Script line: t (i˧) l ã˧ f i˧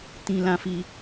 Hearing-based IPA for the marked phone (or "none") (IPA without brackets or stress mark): ĩ˧